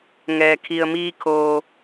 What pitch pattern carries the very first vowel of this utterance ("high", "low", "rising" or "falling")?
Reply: low